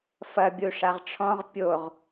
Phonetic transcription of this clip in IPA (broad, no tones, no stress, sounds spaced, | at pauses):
f ɐ bʲ u ʂ a ʁ ʈ͡ʂʰ ɔ̃ ʁ pʲ o ʁ